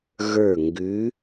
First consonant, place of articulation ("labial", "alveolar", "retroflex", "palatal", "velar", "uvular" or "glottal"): velar